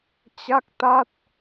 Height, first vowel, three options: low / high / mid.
low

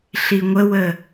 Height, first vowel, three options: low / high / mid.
high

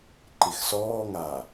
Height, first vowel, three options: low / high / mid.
high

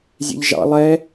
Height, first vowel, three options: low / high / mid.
mid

